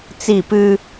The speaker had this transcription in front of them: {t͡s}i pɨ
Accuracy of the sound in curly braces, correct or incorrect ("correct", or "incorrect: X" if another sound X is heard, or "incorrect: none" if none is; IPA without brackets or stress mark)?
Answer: correct